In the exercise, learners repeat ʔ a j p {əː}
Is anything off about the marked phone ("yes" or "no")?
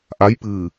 yes